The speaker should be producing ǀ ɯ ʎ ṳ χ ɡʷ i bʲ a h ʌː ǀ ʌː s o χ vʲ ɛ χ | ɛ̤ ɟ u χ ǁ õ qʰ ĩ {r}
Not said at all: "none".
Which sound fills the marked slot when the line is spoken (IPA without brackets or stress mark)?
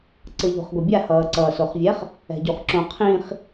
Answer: χ